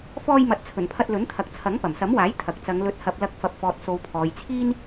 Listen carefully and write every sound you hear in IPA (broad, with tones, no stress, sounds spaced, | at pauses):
f ɔː˧ j m ɐ˨ t̚ t͡sʰ ɵ˨˩ n pʰ ɐ˧ t̚ l ɵ˨˥ n t̪ʰ ɐ˨ k̚ t͡sʰ ɐ˨˥ ŋ p ɐ˨˩ m s ɐ˨˥ m w aː˨˥ j t̪ʰ ɐ˨ k̚ t͡s ɐ˨˧ ŋ l ɵ˨ t̚ h ɐ˨ p̚ l ɐ˨˥ k̚ f ɐ˨˥ p̚ f ɔː˨ t̚ s o˨˧ w pʰ ɔː˨ j t͡sʰ iː˥ n